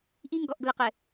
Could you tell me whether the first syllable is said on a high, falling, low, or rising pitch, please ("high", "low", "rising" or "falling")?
high